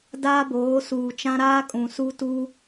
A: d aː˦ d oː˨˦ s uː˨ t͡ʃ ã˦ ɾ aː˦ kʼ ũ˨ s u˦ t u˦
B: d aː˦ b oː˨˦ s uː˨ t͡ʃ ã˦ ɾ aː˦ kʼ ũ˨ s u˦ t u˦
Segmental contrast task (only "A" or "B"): B